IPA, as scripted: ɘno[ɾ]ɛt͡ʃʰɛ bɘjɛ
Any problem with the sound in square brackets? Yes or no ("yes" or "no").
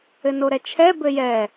no